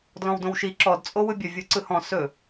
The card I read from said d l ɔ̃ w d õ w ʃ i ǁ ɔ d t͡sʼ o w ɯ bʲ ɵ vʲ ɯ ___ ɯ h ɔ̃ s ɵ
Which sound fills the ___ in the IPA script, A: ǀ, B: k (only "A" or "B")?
A